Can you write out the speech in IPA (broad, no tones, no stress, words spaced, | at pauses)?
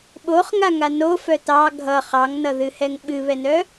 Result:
ɓoχŋa ŋano fœtɑ ɡʱʌ χɑŋnʌðɨhɛŋ ɓɨβɛnœ